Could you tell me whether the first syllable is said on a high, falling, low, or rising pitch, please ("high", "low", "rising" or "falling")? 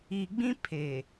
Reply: low